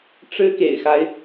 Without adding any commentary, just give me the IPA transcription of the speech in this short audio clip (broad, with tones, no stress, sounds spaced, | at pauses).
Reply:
ʈ͡ʂ ɻ̩˥ k ḛ˨˩ ɪ̯ x a˦ ɪ̯